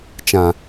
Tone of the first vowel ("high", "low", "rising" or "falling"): low